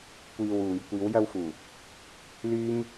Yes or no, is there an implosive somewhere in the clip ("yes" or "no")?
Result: no